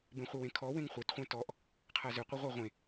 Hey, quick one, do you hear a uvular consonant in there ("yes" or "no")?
yes